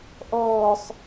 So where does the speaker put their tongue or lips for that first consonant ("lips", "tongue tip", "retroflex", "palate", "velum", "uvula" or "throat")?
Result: throat